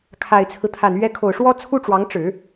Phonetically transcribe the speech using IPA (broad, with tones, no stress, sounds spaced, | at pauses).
kʰ a˨˩ ɪ̯ t͡sʰ ɹ̩˦ t̪ʰ a˨˩ n ɥ ɛ˧˥ kʰ o˨˩ ʊ̯ ʂ w ɔ˥ t͡sʰ u˥ ʈ͡ʂ w ɑ˧˥ ŋ ʈ͡ʂ ɻ̩˨˩˦